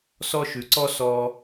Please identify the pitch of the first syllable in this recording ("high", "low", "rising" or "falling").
high